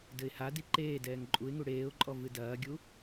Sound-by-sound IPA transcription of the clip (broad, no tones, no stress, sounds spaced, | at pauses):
d ɘ ɪ̯ h a d i ǃ eː d ɛː ŋ ǃʼ u ɪ̯ ŋ u ɽ eː ʊ̯ ǃʼ ɔ v ɨ d ɐː ɡʲ u